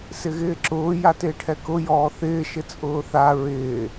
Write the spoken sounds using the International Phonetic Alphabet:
sɪɣɪːǁʊː jatɪːʈʰɛkʊ jɔːθɪː ʃɪt͡sʼʊːθa ɹɪː

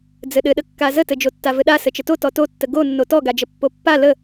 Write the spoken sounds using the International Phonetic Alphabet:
d͡zɘɗɘɗəkːa zətɘd͡ʒo tːavɘɗa sɘt͡ʃəto tɔtotːə ɡonːo tɔɡad͡ʒə pːopːa lə

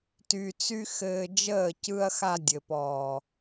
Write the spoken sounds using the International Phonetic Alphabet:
ty˨t͡sy˧ xɘː˧d͡ʒəː˦˨ cɯ˧ɐ̯xa˧dʲɘ˨pɔː˨

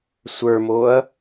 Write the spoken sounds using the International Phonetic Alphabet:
sʷə˞moɐ̯

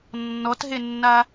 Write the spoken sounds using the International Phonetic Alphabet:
nːɔtɦenːa

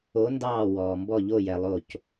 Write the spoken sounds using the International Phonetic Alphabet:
o˧˥ndɑː˦˨ wɔː˨mbɔ˦˨ʎo˦˨jɛ˨ lˠo˦˨c

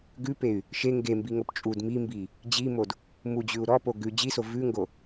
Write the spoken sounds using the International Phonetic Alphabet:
ɡʉpey̯ | ʃe ŋɡembiŋop t͡ʃʼud mimbi | d͡ʑimod | mud͡ʑʉu̯ ɾɔpo ɡʉ d͡ʑiso vʉŋɡo

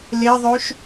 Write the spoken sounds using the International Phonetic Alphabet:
leðˤøʃ

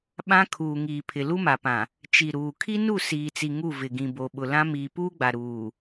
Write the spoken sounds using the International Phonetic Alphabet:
ɓã˦kʰuː˨ŋiː˨ pʰɪ˨lu˦ma˨pã˨ | t͡ʃi˨ɾuː˨ kʰi˦nu˦˨ siː˨t͡si˨ ŋu˦˨vɪ˨ ɡĩ˨bo˨ɓʊ˨ lã˦ miː˨puː˦ɡ͡ba˨ ɾuː˨

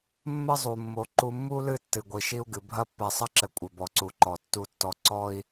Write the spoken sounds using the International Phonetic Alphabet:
mːɘ˦zˤu˨mːo˨ ǃu˨mːu˦lɨ˦˨ tːɨ˨ɡʷi˨ʃi˦u̯ɡɨ˨ bʱɐ˦pːɛ˨sˤɐ˦ǁɘ˨ kʷʼɘ˨bɔ˨ǀu˨ǃɔ˨ tːu˦tːɔ˦ ǀɔ˦i̯

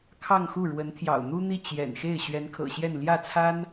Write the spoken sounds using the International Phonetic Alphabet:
kʰɑ˥˧ŋxu˥˩ ɻwə˧˥nt̪ʰjɑ̰˨˩ʊ̯n̪u˥n̪i˥˩ t͡ɕjɛ̰˨˩nxe˥˩ɪ̯ ɕɥɛ˧˥nkʰɤ̰˨˩ɕjɛ˥˧n ljä˥˩t͡sʰa˥n

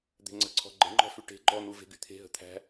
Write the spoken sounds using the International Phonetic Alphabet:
d̪e̤ŋ͡ǀə̤ǀʰɔ̤ ɡ͡ǃə̤ŋ͡ǃɔ̤ fyʈe̤ ɡ͡ǃɔn̪u ve̤ɡyt̪ʰe̤ ɦə̤t̪ʰæ̤

